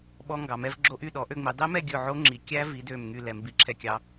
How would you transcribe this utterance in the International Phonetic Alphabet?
ɓ ɔ˦˥ ŋ ɡ ɑ˨˦ m ɛ˦˥ v ɡ͡ǁ o˦˥ ʔ y˥˧ ɗ ɔ˨˦ ʔ ø˥˧ ŋ͡m i˨˦ dˤ i˦˥ m ɛ˥˧ ɡʲ ɵ˥˧ ʕ o˦˥ ŋ͡ǁ i˨˦ kʲ æ˦˥ v i˨˦ d ø˥˧ m ŋ y˥˧ l ɛ˨˦ m b i˦˥ ǁʰ ɛ˥˧ kʲ ɑ˦˥

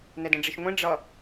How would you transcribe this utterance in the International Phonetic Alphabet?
n ɛ d ɛ̃ ɖ͡ʐ i ʃ ŋʷ ĩ ɖ͡ʐ ʌ

